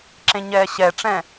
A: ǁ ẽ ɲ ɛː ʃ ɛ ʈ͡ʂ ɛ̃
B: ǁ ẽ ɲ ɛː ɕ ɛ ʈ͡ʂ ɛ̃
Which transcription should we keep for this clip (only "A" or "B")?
B